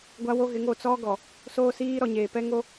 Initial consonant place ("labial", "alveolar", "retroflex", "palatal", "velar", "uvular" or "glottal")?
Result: velar